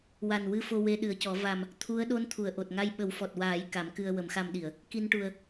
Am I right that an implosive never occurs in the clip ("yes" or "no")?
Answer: no